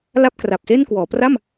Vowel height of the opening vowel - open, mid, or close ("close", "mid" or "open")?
open